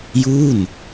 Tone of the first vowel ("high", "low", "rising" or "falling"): falling